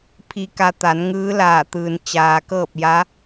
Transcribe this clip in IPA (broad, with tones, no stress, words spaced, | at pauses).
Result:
pʰi˧ka˧t̪a˩˧n ŋɯː˧˥laː˧˩t̪ɯː˩n t͡ɕaː˩kɤː˥˨p̚ ja˧˥